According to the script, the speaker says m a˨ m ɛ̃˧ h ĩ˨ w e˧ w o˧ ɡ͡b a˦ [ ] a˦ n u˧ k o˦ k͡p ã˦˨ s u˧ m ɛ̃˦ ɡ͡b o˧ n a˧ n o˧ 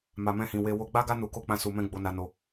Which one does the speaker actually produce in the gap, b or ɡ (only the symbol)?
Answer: ɡ